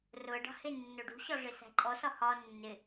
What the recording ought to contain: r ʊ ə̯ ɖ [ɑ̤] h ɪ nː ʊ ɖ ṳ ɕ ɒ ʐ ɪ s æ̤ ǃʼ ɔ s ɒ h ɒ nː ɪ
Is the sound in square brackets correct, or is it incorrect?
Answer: correct